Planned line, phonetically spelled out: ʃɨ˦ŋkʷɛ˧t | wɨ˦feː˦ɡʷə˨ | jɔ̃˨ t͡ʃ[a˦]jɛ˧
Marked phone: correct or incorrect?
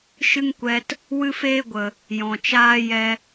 incorrect